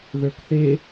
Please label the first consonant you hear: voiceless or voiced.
voiced